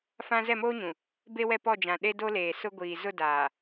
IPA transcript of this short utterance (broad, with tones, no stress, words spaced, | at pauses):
fã˦ zɛ˦˨moː˦ɲũ˨ | be˦wɛ˦ pɔ˦˨d͡ʒã˨ ɗe˦do˦leː˨ sʊ˦ɡʷiː˨ zʊ˦˨daː˨